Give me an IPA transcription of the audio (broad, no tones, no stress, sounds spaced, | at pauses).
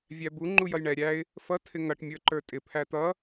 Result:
vʲ æ b u ŋ͡ǃ u j ʌ j ɳ ɛ ɾʲ æ ɪ̯ | f ʌ tʰ ɪ ŋ ʌ ʈ mʲ ə˞ ǃ ə˞ tʼ ɪ pʰ æ t̪ ʌ